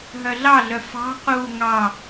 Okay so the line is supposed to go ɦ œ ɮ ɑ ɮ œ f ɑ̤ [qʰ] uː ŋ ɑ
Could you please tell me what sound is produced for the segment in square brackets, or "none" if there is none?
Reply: q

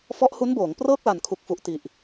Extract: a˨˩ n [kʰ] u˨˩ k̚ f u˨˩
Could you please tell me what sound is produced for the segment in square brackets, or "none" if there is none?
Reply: kʰ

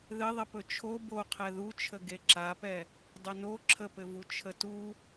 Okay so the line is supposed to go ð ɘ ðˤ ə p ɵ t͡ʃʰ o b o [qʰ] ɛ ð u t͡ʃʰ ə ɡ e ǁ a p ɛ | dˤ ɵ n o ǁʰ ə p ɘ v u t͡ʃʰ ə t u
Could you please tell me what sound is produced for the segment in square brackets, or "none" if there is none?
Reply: qʰ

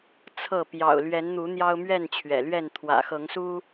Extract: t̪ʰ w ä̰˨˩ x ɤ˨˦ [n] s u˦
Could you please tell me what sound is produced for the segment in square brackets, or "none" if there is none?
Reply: ŋ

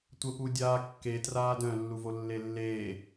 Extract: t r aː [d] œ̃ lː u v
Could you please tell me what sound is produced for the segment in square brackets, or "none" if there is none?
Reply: d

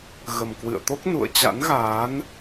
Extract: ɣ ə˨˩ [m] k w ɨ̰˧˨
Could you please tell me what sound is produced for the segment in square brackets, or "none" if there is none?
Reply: m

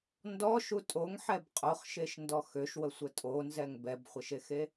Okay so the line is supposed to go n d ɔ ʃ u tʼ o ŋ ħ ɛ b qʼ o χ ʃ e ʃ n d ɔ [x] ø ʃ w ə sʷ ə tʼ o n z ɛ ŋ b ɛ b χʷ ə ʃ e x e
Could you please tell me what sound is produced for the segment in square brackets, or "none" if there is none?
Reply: x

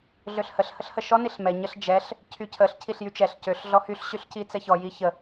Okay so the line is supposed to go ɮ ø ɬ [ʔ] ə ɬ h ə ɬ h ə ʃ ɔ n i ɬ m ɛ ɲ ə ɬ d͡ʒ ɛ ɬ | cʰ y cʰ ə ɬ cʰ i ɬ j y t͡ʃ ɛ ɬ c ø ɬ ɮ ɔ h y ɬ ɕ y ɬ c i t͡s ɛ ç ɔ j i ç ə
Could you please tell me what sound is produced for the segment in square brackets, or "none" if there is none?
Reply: h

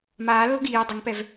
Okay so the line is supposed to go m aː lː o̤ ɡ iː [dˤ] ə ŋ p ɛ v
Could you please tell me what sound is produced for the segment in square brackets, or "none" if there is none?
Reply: dˤ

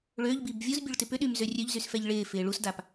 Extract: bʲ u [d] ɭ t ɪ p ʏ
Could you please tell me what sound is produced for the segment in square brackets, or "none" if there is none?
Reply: none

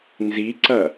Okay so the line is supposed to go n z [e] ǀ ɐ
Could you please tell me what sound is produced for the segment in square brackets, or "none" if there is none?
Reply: i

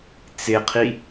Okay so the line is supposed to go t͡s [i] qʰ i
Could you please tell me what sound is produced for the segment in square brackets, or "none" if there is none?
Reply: ɪ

